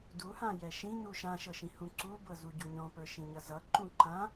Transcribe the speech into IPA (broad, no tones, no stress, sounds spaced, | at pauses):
d u h ã j ɛ ʃ ĩ n u ʃ ã ʃ ɤ ʃ ĩ h ũ ǀ u b ɤ z u ɟ u ɲ ɔ̃ p ə˞ ʃ ĩ ɲ ʌ z ʌ ǃ ũ ǃ ã